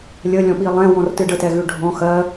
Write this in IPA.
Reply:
lʲ ə lʲ ɔ̃ ɓ i lˠ ɛ̃ w ɔ̃ r t ɨ ɖ ə t ɛ ɣ ʉ ɖʱ ɔ̃ x ɜ

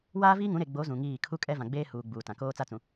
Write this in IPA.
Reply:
w aː˦ v iː˦ ŋ ũ˨˦ ɾ e˨ ɡ͡b o˨˦ z ũ˨ ŋ iː˦˨ kʰ u˦ kʼ ɛ˦ v ã˨ ɡ͡b eː˦ h uː˨ ɡ͡b uː˨ t ã˨ k oː˦ t͡s a˦ t͡s ũ˨

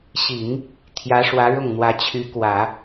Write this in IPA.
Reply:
ɕ i˨˩˦ ŋ | t̪ʰ j ä˧˥ ʂ w ä˧˥ ɻ ʊ˥˩ ŋ n̪ w ä˧˥ t͡ɕʰ y˧˥ k w ä˨˩˦

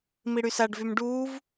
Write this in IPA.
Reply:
m i ɽ y s a ɖ v y m ɖ uː v

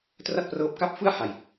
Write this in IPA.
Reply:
t r a˥˩ t̚ p r ɤː˦˥ p̚ k a˥˩ p̚ f ɯ˥˩ a̯ h a˨˩ j

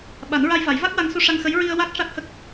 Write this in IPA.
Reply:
ɓ a˨˩˦ n ɹ a˧ j v a˨˩˦ j v a˦˥ k̚ w a˧˥ ŋ s u˧ ʂ a˧ ŋ x ə˧˥ j ɹ i˧ ə̯ w a˦˥ k̚ ʂ a˦˥ k̚ h ə˦˥ k̚

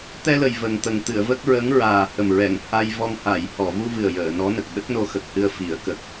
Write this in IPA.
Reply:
t̪ ɛ˧ l ə˨˩ j v ə˨˩ ŋ t̪ ə˨˩ ŋ t̪ ɨ˨˩˨ ə̯ v ə˦˥ k̚ ɹ ə˧˥ ŋ ɹ aː˨˩ h ə˨˩ m ɹ ɛ˨˩˨ ŋ h a˧ j v ɔ˧ ŋ h a˨˩˨ j h ɔ˨˩˨ v u˧ v ɨ˨˩ ə̯ j əː˨˩˨ n ɔ˧˥ n ə˨˩ k̚ ɗ ə˦˥ k̚ n o˧ x ə˨˩ k̚ h ɨ˧ ə̯ f i˨˩˦ ə̯ k ə˨˩ k̚

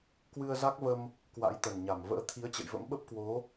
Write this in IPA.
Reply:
k w ɨ˧ ə̯ z a˦˥ k̚ v ə˧ m | k w a̰˧˥ j t̪ ə˨˩ n ɲ a˧˩ m v ə̰ː˧˥ t̪ʰ i˨˦ ə̯ t͡ɕ ə̰˧˨ j v ə̰˧˥ m ɓ ə˦˥ p̚ k w o˨˦

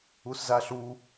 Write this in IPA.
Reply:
u s z a ɬ u

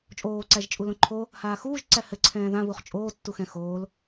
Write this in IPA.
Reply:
t͡ʃʼ oː ǀ æ ʒ t͡ʃʼ u l õ ǃʰ o | h aː x uː ʒ ǀ æ h ɘ ǀʰ ɛ̃ː ð ã β u χ t͡ʃʼ oː tː u x ɛ̃ x oː l

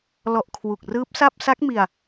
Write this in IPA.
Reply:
l ɔ˨˩ ʔ kʰ w u˨˩ k̚ r ɯː˦˥ p̚ s a˥˩ p̚ s a˦˥ k̚ m i˧ a̯

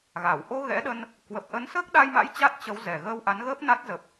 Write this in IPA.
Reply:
ɣ a˧˩ w ʔ o˧ ɣ ɛ̰˧˥ ɗ ə˧ n | k w ə˨˩ p̚ ʔ ə˨˦ n s əː˦˥ k̚ ɗ a˧ j m a̰˧˥ j t͡ɕ a˦˥ t̚ t͡ɕ ə˨˦ w z ɛ˨˩ ɣ əː˧ w ʔ a˨˦ n ɣ əː˦˥ p̚ n a˦˥ t̚ z ə˨˩ p̚

